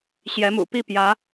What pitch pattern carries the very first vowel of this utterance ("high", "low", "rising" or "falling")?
rising